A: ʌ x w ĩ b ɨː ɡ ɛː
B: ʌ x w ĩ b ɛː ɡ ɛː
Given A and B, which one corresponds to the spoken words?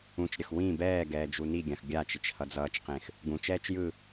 B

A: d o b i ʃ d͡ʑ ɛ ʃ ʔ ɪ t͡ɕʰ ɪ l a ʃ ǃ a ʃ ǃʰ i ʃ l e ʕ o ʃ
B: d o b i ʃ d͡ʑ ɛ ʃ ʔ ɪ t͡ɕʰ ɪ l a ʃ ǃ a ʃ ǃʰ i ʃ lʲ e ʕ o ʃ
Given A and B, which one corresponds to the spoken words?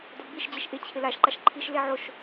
A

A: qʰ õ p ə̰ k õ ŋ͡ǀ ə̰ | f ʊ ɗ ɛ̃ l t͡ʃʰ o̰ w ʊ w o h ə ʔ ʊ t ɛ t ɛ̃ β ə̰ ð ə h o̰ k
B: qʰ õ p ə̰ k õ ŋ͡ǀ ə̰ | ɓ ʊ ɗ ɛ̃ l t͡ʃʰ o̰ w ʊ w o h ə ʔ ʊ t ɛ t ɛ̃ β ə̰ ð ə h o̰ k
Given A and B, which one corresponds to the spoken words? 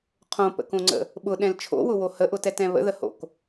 B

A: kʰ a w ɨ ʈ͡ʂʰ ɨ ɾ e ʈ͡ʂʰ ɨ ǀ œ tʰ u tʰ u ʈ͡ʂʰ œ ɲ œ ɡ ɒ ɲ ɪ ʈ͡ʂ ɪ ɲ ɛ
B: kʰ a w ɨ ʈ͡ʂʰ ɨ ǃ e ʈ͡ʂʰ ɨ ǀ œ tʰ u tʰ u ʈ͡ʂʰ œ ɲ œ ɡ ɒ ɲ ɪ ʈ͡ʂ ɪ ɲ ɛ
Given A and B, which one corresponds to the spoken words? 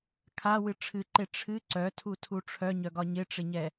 B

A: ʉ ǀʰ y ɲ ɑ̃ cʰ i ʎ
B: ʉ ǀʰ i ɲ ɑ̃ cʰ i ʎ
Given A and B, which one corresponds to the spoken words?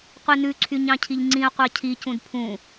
A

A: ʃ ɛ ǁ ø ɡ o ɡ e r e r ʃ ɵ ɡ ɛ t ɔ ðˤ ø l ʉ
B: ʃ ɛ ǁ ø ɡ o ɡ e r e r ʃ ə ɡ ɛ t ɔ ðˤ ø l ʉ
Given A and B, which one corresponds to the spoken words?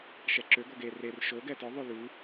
A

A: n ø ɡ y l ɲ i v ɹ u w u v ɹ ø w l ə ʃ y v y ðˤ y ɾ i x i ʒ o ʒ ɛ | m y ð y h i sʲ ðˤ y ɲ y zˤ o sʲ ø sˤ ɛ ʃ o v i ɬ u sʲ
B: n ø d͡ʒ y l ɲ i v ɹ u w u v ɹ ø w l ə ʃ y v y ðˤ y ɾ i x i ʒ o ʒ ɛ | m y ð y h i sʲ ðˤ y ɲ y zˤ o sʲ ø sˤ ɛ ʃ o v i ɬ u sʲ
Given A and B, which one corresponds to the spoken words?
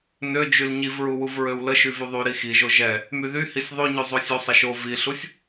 B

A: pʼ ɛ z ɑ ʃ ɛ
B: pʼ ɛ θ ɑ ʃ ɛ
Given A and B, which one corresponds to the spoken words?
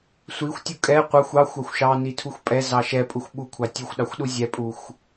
A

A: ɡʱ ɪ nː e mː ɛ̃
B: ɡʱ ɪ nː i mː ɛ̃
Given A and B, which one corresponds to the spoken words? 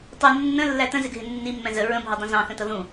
B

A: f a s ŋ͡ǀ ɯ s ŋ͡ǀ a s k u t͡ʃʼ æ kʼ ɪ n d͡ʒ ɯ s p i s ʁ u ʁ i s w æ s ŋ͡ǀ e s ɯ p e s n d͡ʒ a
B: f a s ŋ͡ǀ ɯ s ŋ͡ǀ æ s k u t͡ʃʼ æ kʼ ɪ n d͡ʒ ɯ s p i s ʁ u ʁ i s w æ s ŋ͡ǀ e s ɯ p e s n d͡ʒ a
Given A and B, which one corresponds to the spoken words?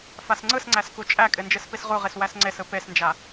B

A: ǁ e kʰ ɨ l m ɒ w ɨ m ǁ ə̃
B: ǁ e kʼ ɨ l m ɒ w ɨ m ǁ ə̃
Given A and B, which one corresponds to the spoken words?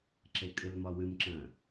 B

